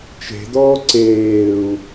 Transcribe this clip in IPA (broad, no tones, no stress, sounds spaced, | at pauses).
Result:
t͡ʃ e̤ d ɔː ǀ eː u̯